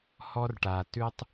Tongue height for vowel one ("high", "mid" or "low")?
mid